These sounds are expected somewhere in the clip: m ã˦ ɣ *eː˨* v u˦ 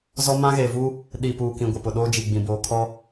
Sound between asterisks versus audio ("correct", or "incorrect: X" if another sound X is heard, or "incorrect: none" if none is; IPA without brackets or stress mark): correct